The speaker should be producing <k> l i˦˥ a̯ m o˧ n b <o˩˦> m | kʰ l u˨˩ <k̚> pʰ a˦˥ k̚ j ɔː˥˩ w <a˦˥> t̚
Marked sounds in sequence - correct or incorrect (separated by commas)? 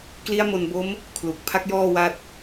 correct, incorrect, correct, correct